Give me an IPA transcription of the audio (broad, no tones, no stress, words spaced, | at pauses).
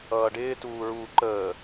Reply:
ʌːɖɪː tuːɹuːǃəː